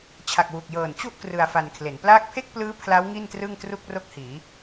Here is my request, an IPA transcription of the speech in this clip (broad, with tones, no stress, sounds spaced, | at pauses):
t͡ɕʰ a˨˩ k̚ w u˨˩ k̚ j ɤː˨˩ n t͡ɕ u˥˩ ʔ k r ɯ˧ a̯ f a˧ n kʰ l e˩˦ n p l aː˦˥ k̚ pʰ e˥˩ k̚ p l ɯː˦˥ pʰ l a˦˥ w ŋ i˥˩ n t r ɯ˥˩ ŋ t r u˥˩ k̚ r o˥˩ k̚ h iː˩˦